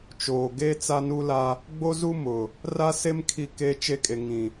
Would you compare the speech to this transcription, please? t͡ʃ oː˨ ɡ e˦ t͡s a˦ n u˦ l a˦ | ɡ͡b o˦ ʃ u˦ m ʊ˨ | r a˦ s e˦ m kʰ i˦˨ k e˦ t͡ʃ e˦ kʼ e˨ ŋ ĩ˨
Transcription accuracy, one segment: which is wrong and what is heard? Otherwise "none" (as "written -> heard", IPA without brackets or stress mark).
ʃ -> z